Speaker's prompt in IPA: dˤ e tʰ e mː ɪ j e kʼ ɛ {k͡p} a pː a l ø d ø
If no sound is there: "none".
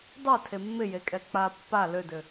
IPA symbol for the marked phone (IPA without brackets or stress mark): k͡p